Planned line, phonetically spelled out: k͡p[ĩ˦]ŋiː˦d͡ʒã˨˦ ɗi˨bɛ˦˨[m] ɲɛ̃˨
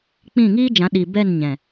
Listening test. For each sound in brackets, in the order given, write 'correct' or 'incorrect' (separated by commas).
incorrect, incorrect